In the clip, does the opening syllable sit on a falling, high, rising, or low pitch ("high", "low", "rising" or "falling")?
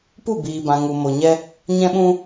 falling